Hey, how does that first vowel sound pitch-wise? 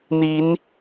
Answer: rising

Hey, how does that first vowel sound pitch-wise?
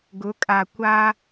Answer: rising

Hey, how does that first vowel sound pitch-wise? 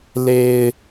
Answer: low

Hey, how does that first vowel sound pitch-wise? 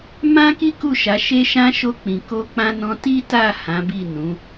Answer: high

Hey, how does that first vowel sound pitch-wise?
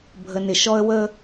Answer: low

